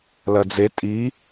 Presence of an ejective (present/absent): present